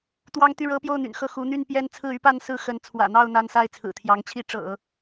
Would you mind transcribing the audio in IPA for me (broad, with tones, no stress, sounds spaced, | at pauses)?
t̪ w ɑ˥ ŋ t̪ y˥˩ ɻ ɤ˥ p j o˥˩ ʊ̯ n̪ y̰˨˩ n x ɤ˥˩ x u˧˥ n̪ y˥˧ n p j ɛ˥˧ n t͡sʰ ɹ̩˥˩ y˥ p a˥˧ n s ɹ̩˥˩ x ə˧˥ n t͡sʰ w ä̰˨˩ n̪ ɑ˥˩ ʊ̯ n̪ a˥ n s a˥ ɪ̯ t͡sʰ ɹ̩˨˩ t̪ʰ j ɑ˧˥ ŋ t͡ɕʰ i˥ ʈ͡ʂ ɤ̰˨˩˦